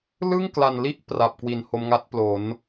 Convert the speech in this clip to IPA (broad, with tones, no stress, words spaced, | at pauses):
lɯ˥˩ŋkla˨˩nli˦˥ʔ pra˨˩p̚kwi˩˦nho˧mŋa˦˥t̚ plo˩˦n